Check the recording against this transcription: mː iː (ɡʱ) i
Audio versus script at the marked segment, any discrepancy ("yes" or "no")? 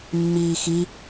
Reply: yes